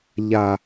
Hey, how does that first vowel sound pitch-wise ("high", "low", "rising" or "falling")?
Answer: low